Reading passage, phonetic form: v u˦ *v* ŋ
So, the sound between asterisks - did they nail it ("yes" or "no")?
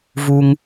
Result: no